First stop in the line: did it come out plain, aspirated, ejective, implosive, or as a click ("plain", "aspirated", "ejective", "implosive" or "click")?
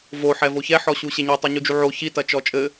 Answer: plain